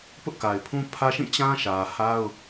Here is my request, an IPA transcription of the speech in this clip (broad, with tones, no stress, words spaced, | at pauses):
pʊ˦ʔka˨ɪ̯pʰũ˦ pʰä˦ʃĩ˦˨ t͡ɕã˦ʃä˨ha˦ʊ̯